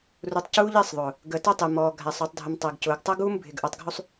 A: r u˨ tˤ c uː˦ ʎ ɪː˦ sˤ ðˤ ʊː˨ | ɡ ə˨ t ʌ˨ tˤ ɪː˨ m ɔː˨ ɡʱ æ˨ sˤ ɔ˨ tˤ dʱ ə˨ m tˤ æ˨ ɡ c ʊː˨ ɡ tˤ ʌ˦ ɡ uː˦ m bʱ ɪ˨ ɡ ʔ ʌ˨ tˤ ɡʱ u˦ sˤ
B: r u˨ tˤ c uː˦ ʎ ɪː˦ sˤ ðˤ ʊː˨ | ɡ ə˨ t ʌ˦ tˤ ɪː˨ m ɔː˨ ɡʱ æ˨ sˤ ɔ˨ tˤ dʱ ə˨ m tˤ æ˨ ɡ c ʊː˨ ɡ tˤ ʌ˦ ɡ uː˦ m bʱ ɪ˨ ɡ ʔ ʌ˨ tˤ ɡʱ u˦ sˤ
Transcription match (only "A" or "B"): B